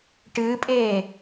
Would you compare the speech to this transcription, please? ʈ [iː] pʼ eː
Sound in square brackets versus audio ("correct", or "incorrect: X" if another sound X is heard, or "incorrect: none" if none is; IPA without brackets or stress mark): incorrect: ɨː